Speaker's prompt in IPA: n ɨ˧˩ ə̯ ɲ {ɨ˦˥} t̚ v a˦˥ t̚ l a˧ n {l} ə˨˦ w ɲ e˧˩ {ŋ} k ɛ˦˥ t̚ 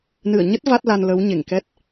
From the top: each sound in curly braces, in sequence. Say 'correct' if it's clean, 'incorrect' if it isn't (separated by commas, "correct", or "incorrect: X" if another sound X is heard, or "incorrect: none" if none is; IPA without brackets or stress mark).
incorrect: ə˦˥, correct, correct